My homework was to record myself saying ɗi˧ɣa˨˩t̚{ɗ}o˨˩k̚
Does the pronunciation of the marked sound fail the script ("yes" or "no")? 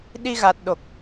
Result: no